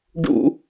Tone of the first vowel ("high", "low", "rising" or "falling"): high